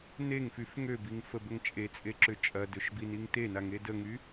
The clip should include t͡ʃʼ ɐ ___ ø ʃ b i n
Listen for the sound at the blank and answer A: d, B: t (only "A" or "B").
A